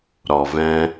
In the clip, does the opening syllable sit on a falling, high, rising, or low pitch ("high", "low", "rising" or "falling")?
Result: low